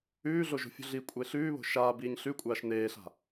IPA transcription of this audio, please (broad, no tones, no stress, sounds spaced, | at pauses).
ʉː ɮ o ʒ o̤ fʲ ṳ ɮ i kʷʼ e ɬ ʉː β o̤ ʃ aː b iː ɲ ɬ ʉ kʷʼ aː ʃ n eː ɬ a̤